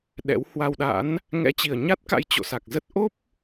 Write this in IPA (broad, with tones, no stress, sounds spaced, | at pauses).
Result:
ɗ ɛ̰˧˥ w h w a˧ w ɗ a̰˧˥ n | ŋ ɛ̰˧˥ t͡ɕ i˨˩ ə̯ ɲ a˦˥ t̚ k a̰˧˥ j t͡ɕ o̰˧˨ s a˨˩ k̚ z ə˦˥ t̚ ʔ o˦˥ p̚